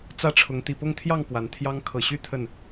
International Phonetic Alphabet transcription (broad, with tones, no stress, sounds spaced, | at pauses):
t͡s ä˥˨ ʈ͡ʂʰ ʊ˨˦ ŋ t̪ i˨˩ p ʊ˥˨ ŋ t̪ʰ j ɑ˥˨ ŋ p w a˨˦ n t̪ʰ j ɑ˦ ŋ kʰ ɤ˨˩ ɕ y˥˨ t̪ʰ ə˥˨ n